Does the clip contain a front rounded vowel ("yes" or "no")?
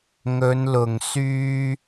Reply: yes